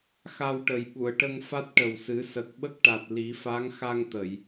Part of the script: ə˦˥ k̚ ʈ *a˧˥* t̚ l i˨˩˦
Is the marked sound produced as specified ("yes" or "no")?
no